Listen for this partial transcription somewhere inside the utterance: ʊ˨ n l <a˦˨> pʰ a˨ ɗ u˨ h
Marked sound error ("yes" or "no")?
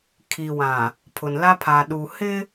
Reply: yes